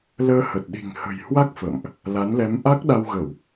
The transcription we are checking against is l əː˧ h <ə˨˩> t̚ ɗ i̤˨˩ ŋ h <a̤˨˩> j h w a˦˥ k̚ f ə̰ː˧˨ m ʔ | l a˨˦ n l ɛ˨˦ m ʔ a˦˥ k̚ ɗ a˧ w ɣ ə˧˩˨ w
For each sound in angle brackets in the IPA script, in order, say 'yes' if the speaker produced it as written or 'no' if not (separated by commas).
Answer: yes, no